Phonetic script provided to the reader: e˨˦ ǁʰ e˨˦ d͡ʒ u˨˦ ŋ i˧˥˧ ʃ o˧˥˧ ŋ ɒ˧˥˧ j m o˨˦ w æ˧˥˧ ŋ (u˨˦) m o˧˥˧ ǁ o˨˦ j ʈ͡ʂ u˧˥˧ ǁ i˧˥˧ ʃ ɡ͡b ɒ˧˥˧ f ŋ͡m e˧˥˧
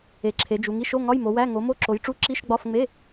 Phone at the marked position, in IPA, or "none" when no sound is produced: o˨˦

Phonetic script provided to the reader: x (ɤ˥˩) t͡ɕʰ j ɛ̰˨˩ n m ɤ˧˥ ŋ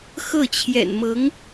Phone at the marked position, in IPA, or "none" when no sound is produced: ɤ˥˩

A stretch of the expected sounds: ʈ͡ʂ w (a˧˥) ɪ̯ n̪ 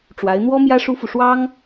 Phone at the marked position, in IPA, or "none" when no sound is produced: a˧˥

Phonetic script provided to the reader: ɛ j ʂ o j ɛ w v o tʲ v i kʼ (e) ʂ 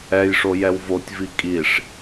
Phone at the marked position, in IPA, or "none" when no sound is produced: i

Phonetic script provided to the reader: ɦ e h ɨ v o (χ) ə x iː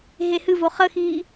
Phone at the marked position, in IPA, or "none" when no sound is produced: χ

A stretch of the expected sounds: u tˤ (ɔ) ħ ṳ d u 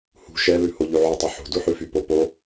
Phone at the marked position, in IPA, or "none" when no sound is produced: ɵ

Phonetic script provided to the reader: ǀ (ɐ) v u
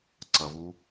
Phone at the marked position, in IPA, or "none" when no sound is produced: ɐ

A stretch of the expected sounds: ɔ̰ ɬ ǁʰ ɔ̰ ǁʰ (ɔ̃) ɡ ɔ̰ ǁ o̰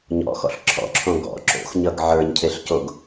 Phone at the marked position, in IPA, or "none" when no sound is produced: õ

